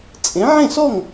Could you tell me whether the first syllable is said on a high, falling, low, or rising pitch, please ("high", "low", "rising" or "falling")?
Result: rising